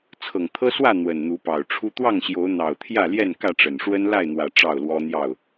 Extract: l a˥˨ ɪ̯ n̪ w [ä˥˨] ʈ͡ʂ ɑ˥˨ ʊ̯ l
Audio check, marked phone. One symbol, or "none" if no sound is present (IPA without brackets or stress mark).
ä˨˩